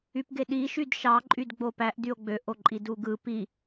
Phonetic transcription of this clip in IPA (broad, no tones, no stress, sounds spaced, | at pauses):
y p ɡ e ɗ i ʃ y d ʃ ɑ ǃʼ y d ɡ͡b o p æ ʔ d y o̯ ɡ͡b ø ʔ o ǃʼ i d u ɡ ɯ p i